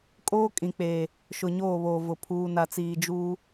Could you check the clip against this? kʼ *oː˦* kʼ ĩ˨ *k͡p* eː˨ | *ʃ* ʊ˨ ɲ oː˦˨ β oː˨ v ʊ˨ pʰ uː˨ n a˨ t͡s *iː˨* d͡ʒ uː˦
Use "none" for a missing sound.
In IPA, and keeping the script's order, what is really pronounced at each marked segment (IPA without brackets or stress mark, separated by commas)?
oː˦, k͡p, ʃ, iː˨